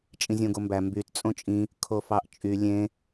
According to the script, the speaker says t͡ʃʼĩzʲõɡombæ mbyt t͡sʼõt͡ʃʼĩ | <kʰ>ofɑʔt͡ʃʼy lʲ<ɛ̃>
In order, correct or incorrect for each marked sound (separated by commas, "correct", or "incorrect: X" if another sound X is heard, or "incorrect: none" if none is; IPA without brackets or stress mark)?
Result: correct, incorrect: ẽ